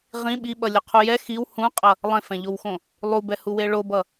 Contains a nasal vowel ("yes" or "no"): yes